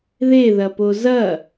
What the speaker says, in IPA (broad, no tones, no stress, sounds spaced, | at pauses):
ð e ð ɐ p o z ɐ